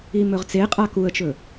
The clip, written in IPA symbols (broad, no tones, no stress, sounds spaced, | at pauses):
i m ɵ ʁ t͡s e qʼ a k u ə̯ t͡ʃ ɵ